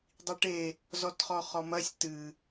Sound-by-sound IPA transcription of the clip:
dˤ i ʈ e | z ɔ t χ ɔ χ ɔ m ɐ sʲ t ɨ

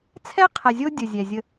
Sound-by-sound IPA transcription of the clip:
t͡sʰ ɛ˥ qʰ ɛ˨ zʲ o˦ dʲ ə˩ zʲ ɛ˩ zʲ ə˨

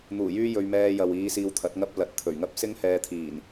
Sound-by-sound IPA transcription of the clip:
n̪ uː˨˩ j yː˥ j ɵ˧ ɥ m ɛː˧ j ɐ˨ w iː˨˧ s iː˧ w t̪ʰ ɐ˨˥ t̚ ŋ ɐ˥ p̚ l ɐ˨ t̚ t̪ʰ ɵ˨˩ ɥ ŋ ɐ˥ p̚ s ɪ˥ ŋ h ɛː˧ t̪ʰ iː˨˩ n

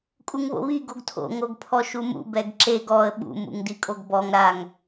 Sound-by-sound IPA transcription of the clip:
kʼ u ŋ β o̰ β i ɡ o ɡ tʰ o̰ ŋ o ɡ pʰ ɔ ʃ u m ṵ b ɛ ɡ ǁ e ɡ ɔ ə̯ ɓ ṵ m ṵ ŋ d i kʼ o ɡ b ɔ ŋ ɾ a ŋ

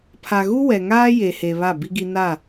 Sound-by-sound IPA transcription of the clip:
pʰ a˨ ɣ u˦ w ɛ˨ ŋ aː˦ j e˨ h e˨ β a˦˨ b i˦ ɡ i˦ n a˦˨

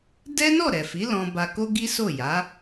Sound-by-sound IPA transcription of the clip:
d ɛ˦ n ɔ˦˨ ɾ ɛ˨ f i˨˦ l ɔ̃˧ b a˧ k o˦ ɡ i˦ s o˦˨ j a˨˦

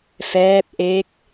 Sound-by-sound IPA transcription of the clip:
f ɛː˦˥ p̚ ʔ e˦˥ k̚

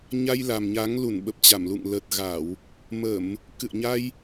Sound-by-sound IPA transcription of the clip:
ɲ a˧ j l a˨˩ m ɲ a˨˦ ŋ l u˧˩ n ɓ ə˨˩ p̚ t͡ɕ a˧˩ m l ṵ˧˨ ŋ l ə˨˩ t̚ ɣ a˧˩˨ w | m ə˧˩˨ m | k ɨ̰˧˨ ə̯ ɲ a˧ j

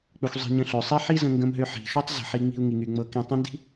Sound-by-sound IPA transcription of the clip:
k͡p ø˧ xʷ zˤ i̤˧ ɲ ə̃˧ ɬ ø˩ sˤ i˥ ħ i˥ z ə̃˧ ŋ ɡ ə̃˧ m ɦ ø˧ ħ i̤˩ ʃ ø˥ tˤ z ə̤˩ ħ i˧ ŋ͡m i̤˧ u̯ ŋ i˩ ŋ y˩ ŋ͡m ɤ˧ k ĩ˧ tˤ ə̃˥ n d i̤˥

